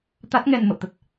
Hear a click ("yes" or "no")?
no